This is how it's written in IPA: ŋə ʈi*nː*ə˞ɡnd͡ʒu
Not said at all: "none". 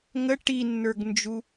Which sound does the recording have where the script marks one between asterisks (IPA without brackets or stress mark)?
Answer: nː